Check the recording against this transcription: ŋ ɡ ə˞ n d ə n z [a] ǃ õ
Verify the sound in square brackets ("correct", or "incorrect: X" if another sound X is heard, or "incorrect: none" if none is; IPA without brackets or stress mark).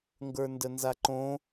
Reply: correct